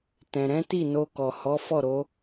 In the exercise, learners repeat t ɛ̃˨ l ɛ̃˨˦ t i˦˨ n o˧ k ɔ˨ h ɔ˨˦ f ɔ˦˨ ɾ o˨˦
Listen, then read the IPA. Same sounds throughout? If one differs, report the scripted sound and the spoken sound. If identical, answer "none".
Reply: l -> ɾ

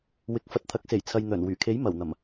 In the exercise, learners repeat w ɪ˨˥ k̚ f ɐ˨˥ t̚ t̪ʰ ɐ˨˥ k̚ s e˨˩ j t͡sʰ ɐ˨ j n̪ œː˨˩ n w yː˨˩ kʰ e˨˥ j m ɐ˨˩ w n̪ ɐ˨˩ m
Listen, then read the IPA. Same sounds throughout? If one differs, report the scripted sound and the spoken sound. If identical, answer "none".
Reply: none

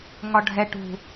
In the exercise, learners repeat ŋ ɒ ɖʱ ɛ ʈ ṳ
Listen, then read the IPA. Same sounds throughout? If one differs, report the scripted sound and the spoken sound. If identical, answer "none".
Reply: none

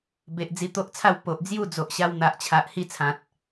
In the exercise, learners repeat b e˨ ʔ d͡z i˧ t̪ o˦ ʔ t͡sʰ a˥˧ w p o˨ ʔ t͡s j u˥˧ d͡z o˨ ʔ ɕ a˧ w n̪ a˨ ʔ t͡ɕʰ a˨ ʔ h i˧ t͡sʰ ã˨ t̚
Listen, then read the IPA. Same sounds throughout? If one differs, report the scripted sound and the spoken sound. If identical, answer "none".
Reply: t͡s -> d͡z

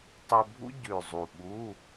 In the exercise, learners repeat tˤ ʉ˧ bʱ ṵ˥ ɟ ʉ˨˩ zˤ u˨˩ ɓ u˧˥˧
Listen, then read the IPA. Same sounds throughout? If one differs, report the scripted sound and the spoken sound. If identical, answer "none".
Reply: none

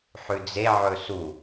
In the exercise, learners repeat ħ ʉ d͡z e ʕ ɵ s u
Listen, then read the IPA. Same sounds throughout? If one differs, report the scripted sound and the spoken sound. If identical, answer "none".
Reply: none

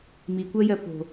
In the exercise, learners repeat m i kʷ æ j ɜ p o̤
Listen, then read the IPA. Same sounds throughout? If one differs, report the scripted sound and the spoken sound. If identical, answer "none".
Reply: æ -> ɜ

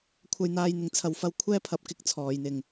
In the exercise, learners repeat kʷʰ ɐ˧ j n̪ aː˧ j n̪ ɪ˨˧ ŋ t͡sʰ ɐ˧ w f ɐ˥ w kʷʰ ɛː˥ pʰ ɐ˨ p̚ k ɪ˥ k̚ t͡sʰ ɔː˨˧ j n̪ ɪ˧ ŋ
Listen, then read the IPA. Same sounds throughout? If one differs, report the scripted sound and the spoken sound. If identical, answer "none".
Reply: none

